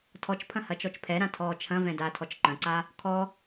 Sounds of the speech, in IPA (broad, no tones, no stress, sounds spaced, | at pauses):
tʰ ɔ t͡ʃ pʰ ɐ̃ h ɐ t͡ʃ ɔ t͡ʃ pʰ ɛ ɾ ã tʰ ɔː t͡ʃʰ ɐ̃ v ɛ̃ d a tʰ ɔ t͡ʃ ǃ ɐ̃ ǀ a | kʰ ɔ